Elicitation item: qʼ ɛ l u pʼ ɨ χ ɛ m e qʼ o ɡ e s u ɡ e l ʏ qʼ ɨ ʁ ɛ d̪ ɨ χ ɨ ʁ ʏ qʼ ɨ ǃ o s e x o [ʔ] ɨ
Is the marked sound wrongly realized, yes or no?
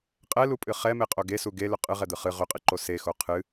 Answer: yes